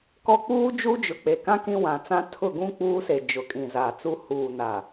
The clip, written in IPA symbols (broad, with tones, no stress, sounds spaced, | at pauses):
k ɔ˦ k͡p uː˦ d͡ʒ u˦ d͡ʒ ʊ˨ k͡p e˨ k ã˦ k ĩ˦ w ã˨ t͡s ã˦ tʰ ʊ˦˨ ɡ ũ˦ k͡p uː˦ s e˨ d͡ʒ ʊ˨˦ kʼ ĩ˨ z a˨ t͡s u˦ h uː˨ n a˨